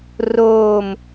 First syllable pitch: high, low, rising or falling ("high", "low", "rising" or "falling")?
falling